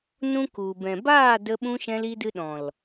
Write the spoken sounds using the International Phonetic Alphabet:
n ũ˦ k u˨ b ɛ̃˨ b aː˦˨ d ə˧ ɓ ũ˧ ʃ ɛ̃˧ l i˧ d ɨ˧ ɗ ɔ̃˨ l

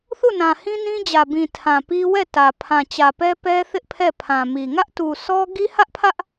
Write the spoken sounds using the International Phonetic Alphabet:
θ u˦˨ n ã˨ h ĩ˦ n ĩ˦ d͡ʑ ä˨ b ĩ˨ tʰ ã˨ p i˦ w ɛ˦˨ t ä˨ pʰ ã˨ t͡ɕ ä˨ p ɛ˦ p ɛ˦ θ ɪ˦ ʔ pʰ ɛ˦˨ pʰ ã˨ m i˨ ŋ ä˦ ʔ t u˨ sʰ ɔ˦ ɡ i˦ h ä˦ ʔ pʰ ä˦ ʔ

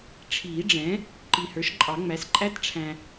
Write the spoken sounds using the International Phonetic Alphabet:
ʈ͡ʂʰ iː˨˩˦ ɖ͡ʐ ɛ̃˩˥ | ǃ i˨ h ə˞˩˥ ʃ ǃʼ ɑ˨˩˦ ŋ͡m æ˩˥ s ǃʼ æ˦˥ t ʈ͡ʂʰ æ̃˨

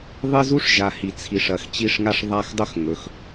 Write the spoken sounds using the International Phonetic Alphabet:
ðˤ ɨ˦ z u˦ ʂ ʒ a˨ h i˨ t͡sʰ i˨ ʂ ɐ˨ x t͡ɕ i˦ ʂ ŋ a˦ ʂ ðˤ a˦˨ x dˤ ɵ˦ x ŋ ɵ˨ x

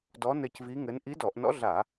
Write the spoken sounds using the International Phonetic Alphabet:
d ɔ˧˥ n ɘ˦˨ c v i˧˥ ŋ ɘ˧˥ n ʔ i˧˥ d ɔ˧˩˧ ʔ n ɔ̰˧˥ ɮ a˧˩˧

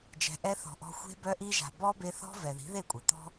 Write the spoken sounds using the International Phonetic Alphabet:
d͡ʒ ɛ̤˨ ʔ ɛ˧ θ ɔ̤˨ ʔ ɔ̤˧ xʷ e̤˦ b œ˧ ʔ i˧ ʒ a̤˨ b ɔ˦ b e˧ θ ɔ̤˦ v ɛ˨ ð i̤˨˦ ð e˦˨ kʷʼ e˨ t̪ ɔ̤˦

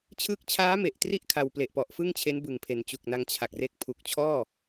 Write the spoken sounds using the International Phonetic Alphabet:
t͡ɕʰ ɯ˦˥ k̚ t͡ɕʰ aː˦˥ m e˨˩ ʔ t r i˥˩ ʔ kʰ a˧ w p l e˨˩ ʔ p ɔ˨˩ ʔ f ɯ˥˩ ŋ t͡ɕʰ e˦˥ n b ɯ˨˩ ŋ pʰ e˩˦ n t͡ɕ u˨˩ k̚ n a˧ ŋ t͡ɕʰ a˨˩ k̚ r e˦˥ k̚ pʰ u˨˩ k̚ t͡ɕʰ ɔː˥˩

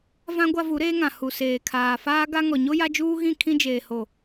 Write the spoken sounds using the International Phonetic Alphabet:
v ã˦ ɡʷ a˦ v u˨˦ ɾ eː˦ ŋ ã˨ h u˨ s eː˨ kʰ aː˨ f aː˦ ɡ a˦ ŋ ɔ˨ ɲ o˦ j a˦ d͡ʒ uː˦ ɣ ĩ˦˨ kʰ ĩ˦ d͡ʒ eː˨ h o˨

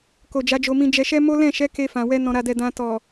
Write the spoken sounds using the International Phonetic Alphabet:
k o˨ d͡ʒ a˨˦ d͡ʒ o˧ m ĩ˧ d͡ʒ ɛ˧ ʃ ɛ˦ m o˦ l ɛ̃˦˨ ʃ ɛ˨˦ k e˧ f ã˨ w ɛ˧ n ɔ̃˨ ɾ a˨ d ɛ˨ d ã˧ t ɔ˨

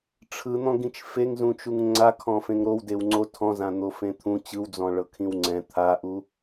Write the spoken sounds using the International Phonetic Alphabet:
ʈ͡ʂʰ ɯ n̪ ɔ̃ ɡ ĩ t͡ʃ f e ŋ z ũ t͡ʃ u ŋ ŋ͡ǀ a kʰ ɔ̃ f ẽ ŋ ɾ o w d e w ŋ͡ǀ o tʰ ɔ̃ z ã n̪ o f ẽ t̪ʰ ũ t͡ɕ ɯ w d͡z ɔ̃ ɭ ɤ kʰ ĩ w ŋ͡ǀ ɛ̃ t̪ʰ a ʔ u

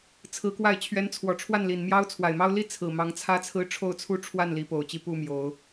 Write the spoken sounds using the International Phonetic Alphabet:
t͡sʰ ɹ̩˧˥ k w a˥˩ ɪ̯ t͡ɕʰ ɥ ɛ˧˥ n t͡sʰ w ɔ˨˩ ʈ͡ʂʰ w a˥˩ n l i˨˩ n m j ɑ˥ ʊ̯ t͡sʰ w a˨˩ ɪ̯ m ɑ˥ ʊ̯ l i˥ t͡sʰ ɹ̩˨˩ m ɑ˧˥ ŋ t͡sʰ ä˥ t͡sʰ ɹ̩˥ ʈ͡ʂʰ o˥˧ ʊ̯ t͡sʰ u˥˧ ʈ͡ʂʰ w a˥˩ n l i˧˥ p o˨˩ ʊ̯ t͡ɕ i˥˧ p u˥˩ m j o˨˩˦ ʊ̯

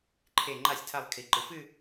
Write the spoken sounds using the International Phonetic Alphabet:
ǃʰ e˧˩ ŋ͡ǃ a˥˩ sʲ tʰ a˧˩ lˠ kʰ i˩˧ ǃ ɨ˩˧ f ɨ˥˧

